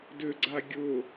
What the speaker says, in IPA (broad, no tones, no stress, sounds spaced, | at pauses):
d ʏ ɡ͡ǀ a ɡʲ ʊ